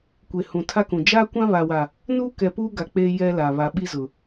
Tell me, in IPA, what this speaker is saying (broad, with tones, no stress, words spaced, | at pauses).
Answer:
kʷe˨hũ˨tʰa˦kũ˨ d͡ʒaː˦kʷã˦βa˨wa˨ | nuː˦kɛ˨puː˦ɡa˨ k͡peː˦ jɛ˦la˨ βa˨ɓi˦zʊ˨